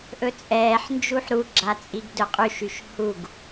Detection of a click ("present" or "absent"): present